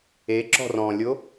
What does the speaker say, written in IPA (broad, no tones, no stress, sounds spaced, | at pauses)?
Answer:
e ǁ ɔ̤ r ɔ̃ lʲ o